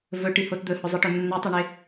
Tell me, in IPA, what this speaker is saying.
vɵʈihot d̪ɵhɵzˤɨʈɵ nːʉtˤɨɳe

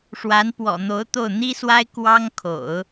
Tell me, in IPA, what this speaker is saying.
ʂwa˧˥npwɔ̰˨˩n̪o˧˥ʊ̯t̪o˥˩ʊ̯ n̪i˥swa˥ɪ̯ kwɑ˥ŋkʰo̰˨˩˦ʊ̯

